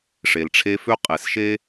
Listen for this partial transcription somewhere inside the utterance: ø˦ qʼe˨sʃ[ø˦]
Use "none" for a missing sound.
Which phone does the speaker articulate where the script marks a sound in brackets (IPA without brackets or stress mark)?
e˦